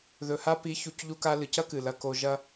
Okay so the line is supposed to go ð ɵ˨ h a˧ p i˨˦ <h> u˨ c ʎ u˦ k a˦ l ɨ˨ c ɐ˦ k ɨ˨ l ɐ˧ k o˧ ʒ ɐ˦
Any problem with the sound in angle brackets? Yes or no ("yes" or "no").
yes